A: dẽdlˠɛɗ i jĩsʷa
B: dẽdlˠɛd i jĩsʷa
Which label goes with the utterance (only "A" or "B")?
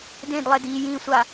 B